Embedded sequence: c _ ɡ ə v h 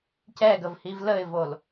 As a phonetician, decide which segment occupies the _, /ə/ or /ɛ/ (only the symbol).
ɛ